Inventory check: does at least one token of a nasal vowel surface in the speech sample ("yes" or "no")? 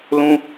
yes